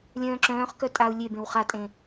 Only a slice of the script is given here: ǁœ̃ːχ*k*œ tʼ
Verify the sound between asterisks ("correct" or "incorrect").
correct